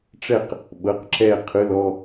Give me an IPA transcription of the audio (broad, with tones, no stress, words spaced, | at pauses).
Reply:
ʈ͡ʂɛ˦˨q | ɓɤ˩˧˩qǁɛ˦˨ qʰɯ˩˧˩lɔ˦˨